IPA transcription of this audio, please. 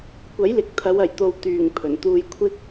kʷ ɐ˨˥ j l ɪ˨ k̚ t̪ʰ ɐ˨˧ w ɐ˨˩ j t̪ o˨ w t̪ yː˨˩ ŋ pʰ ɵ˨˩ n t̪ uː˧ j kʷʰ ɪ˧ k̚

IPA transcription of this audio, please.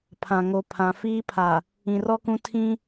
pʰ ã˨ ŋ o˨ pʰ ã˨ f iː˦ pʰ a˨ | ĩ˨ r ɔ˦ k ũ˦ tʰ ĩ˦

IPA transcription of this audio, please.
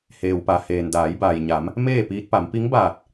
h eː˩ w p a˩ h eː˩ n d aː˩˧ j b aː˩ j ɲ a˩˧ m | m eː˥˨ p iː˧ t̚ p a˩˧ m p i˧˥ ŋ b aː˧˩ t̚

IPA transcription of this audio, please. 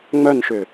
ŋ͡m œ n ʃ ʏ

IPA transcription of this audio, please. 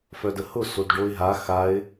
f œ d ə h ʊ s o d ɖ o ɪ̯ ɦ a x a ɪ̯

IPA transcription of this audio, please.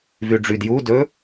v y ɖ͡ʐ y d j u d ɵ

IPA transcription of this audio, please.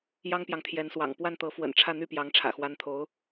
j ɑ˥ ŋ p j ɑ˨ ŋ t̪ʰ j ɛ˧˥ n s w ɑ̰˨˩ ŋ p w a˥˩ n t̪ ɤ˧˥ f w ə̰˨˩ n ʈ͡ʂʰ ä˥˧ n̪ y˥˩ p j ɑ˧˥ ŋ ʈ͡ʂʰ ä̰˨˩ x w a˧˥ n t̪ʰ o˧˥ ʊ̯

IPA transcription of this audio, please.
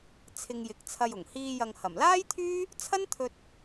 t͡sʰ ɪ˧ ŋ j ɪ˨˥ k̚ t͡sʰ ɐ˧ j ʊ˨˩ ŋ h iː˧ j ɐ˨ ŋ h ɐ˨˩ m l aː˥ j t̪ʰ yː˥ | t͡sʰ ɐ˥ n t̪ʰ ɵ˧ t̚

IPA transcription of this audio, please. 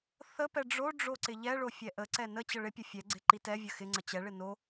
θ ə p ɛ ɖ͡ʐ o ɖ͡ʐ o ǀ ɪ ʎ ɛ ɭ o fʲ ɛ ʔ ə ǀ ɛ n ə t͡ɕ ə ɭ ɪ pʲ ə fʲ ɛ ɡ͡ǀ ɪ ǃ i t ɛ vʲ ə x ɪ ŋ͡ǀ ə t͡ɕ ɛ ɭ ɪ n o

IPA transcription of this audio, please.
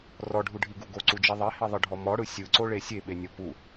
r ɔ ɖʱ u ɖʱ i ɡ u ɡ o ǀ u d͡ʒ i ðˤ e h i ðˤ ɯ ɖʱ ɔ m ɔ ɽ ɯ sʲ ɯ ǀ o ɭ e sʲ e ɓ e nʲ ɔ p u

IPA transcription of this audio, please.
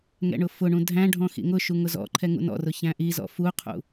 ŋ ɛ̰ ɳ ʊ f ʊ ɳ ũ dʱ æ̃ ɖʱ ɔ̃ x ḭ ŋ ʊ ʃ u ŋ ʊ z ɔ̰ ǃʰ ɛ ŋ ṵ n ɔ̰ r ʊ ç æ̃ ʔ i z ɔ̰ f u qʰ ṵ

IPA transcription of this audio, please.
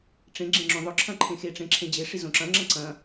ʈ͡ʂ ẽ ɡ͡ǁ ẽ ŋ͡ǁ õ ðˤ ʊ ǁʰ ɐ̃ ǃʰ ẽ x e ʈ͡ʂ ẽ ǁʰ ẽ d͡ʑ e ʂ i z õ ǁ ɐ̃ ŋ͡ǁ ɐ̃ ǀ ɐ̃

